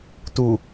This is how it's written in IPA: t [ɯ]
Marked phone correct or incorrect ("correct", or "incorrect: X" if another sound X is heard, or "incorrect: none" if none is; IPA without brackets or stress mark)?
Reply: incorrect: u